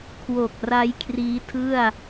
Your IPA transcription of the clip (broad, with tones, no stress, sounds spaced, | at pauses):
kʰ w o˨˩ k̚ r a˦˥ j kʰ r iː˦˥ tʰ ɯ˥˩ a̯